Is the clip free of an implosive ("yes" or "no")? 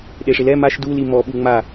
no